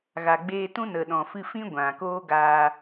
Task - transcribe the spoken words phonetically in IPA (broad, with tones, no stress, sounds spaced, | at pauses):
ɣ a˨ ɡ͡b eː˧ t ũ˦ n ə˨ ɗ ɔ̃˨ f ɨ˧ f ĩ˦ ɡʷ ã˨ k oː˦ ɡ aː˧